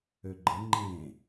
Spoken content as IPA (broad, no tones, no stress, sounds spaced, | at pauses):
ø ɡ͡ǃ ə ŋ͡ǃ ẽ